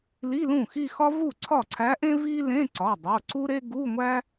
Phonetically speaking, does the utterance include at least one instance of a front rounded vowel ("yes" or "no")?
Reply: no